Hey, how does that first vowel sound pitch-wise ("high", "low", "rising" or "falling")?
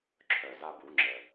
low